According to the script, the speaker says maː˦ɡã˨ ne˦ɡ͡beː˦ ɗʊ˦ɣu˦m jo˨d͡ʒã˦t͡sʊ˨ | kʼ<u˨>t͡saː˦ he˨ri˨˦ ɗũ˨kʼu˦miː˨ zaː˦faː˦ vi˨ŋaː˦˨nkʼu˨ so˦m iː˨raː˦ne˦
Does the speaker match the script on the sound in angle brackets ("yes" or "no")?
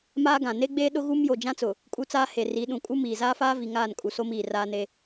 no